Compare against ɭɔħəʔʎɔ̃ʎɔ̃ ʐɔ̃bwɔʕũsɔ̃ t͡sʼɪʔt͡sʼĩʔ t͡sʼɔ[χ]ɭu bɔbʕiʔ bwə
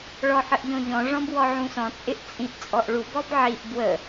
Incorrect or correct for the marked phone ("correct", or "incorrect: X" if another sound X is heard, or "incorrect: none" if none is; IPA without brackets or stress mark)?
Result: incorrect: ʔ